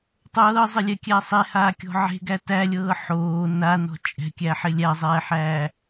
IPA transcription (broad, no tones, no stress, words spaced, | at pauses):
tˤɤːzˤɪlʲɛkʲæ sˤehaːkʲɔ̤ ʕe̤ɡæ tælʲɤː ħoː nanɔ̤ t͡ʃʼɛ̤kʲæħɪ lʲæzˤɛːħæː